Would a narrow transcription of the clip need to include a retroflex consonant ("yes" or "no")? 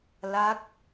no